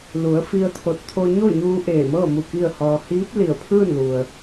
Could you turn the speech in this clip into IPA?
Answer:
l u˩˧ ə̯ f i˧ ə̯ t̪ʰ o˧˩ t̚ t̪ʰ o˧ ɲ o˥˨ ɲ uː˧ ʔ eː˧˩ m ɤː˥˨ m u˧˩ k i˥˨ ə̯ h ɔː˧ h iː˧˥ p̚ l i˧˩ ə̯ pʰ ɯː˥˨ n l u˩ ə̯

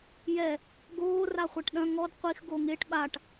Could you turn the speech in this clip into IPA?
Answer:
j ɛ | ɡ oː r a χʷ ɐ ʈ ɗ ɐ̃ ŋ ɔ d qʷ i x ɡ o ŋ e ʈ ɓ a ʈ

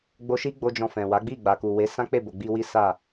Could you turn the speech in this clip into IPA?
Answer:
ɡ͡b o˧ ʃ i˦ ɡ͡b o˦ d͡ʒ ɔ̃˧ f ɛ̃˨ w a˨˦ ɡ͡b i˦˨ ɡ͡b a˨ k u˨ w e˨˦ s ã˦ k͡p e˦˨ b o˨ ɡ͡b i˧ w i˦ s a˦˨

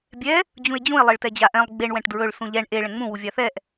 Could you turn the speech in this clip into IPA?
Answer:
bʲ ɛ | d͡ʑ ũ e̯ d͡ʑ ũ e̯ lˠ e ɭ t ɛ d͡ʑ a ʔ ɛ̃ lˠ ɡ͡b e ɳ w ɛ̃ ʈ d ɹ ɵ ɭ s ũ ʎ ɛ ɳ ʔ e ɭ ɛ̃ ŋ͡m ũ w u vʲ a θ ɛ ʔ

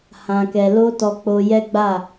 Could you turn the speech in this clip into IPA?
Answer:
h ã˨ k ɛ˨ l o˧ t ɔ˧ k͡p o˧ j ɛ˦ ɡ͡b a˦˨

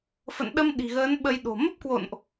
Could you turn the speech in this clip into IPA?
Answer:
f ə̰˧˨ n ɗ ə˧ m ɗ i̤˨˩ ɣ əː˨˦ n ɓ ə˧ j ɗ o̤˨˩ m ə˦˥ p̚ k w o̰˧˨ n ʔ

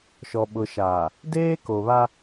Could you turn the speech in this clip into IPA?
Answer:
ʃ ɔ˨ ɓ ʊ˨ ʃ aː˨ | d eː˦ k o˨ β a˦

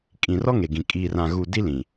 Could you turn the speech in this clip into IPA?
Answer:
kʼ ĩ˨ r ɔ˦ ŋ e˨ ɡ ĩ˨ kʼ iː˨ r ã˨ ɣ u˨ d i˦ l ĩ˨

